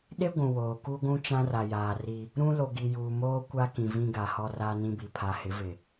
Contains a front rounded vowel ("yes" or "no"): no